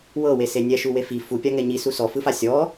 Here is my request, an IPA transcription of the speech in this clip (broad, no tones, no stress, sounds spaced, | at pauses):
w ɤ w e s e nʲ ɛ ʃ u w e f i f u pʲ a ŋ ɛ ɲ i s u s ɔ f ɯ f a sʲ ɔ